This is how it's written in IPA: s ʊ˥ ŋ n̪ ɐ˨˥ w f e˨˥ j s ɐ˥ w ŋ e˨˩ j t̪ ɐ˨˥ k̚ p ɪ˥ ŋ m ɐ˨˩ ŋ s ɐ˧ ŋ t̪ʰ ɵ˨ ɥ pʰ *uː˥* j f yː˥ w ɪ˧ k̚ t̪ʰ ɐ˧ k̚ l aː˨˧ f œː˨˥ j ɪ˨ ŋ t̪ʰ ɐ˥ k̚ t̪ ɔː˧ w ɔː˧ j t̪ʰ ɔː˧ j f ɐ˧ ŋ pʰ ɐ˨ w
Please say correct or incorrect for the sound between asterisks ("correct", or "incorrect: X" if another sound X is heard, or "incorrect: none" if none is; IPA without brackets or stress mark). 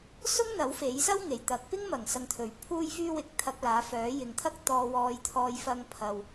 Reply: correct